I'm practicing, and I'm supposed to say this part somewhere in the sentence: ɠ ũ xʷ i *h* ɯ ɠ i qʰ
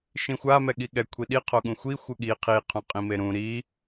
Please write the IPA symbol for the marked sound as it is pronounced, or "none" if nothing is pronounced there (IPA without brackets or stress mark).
xʷ